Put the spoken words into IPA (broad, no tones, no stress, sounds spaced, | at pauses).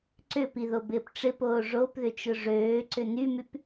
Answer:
ǀ ʏ p i ð o b ɪː p ʈ͡ʂ ɪ p oː ʐ o p ð ʏ t͡ʃ ʊ ʐ øː ǀ ʏ n y m y p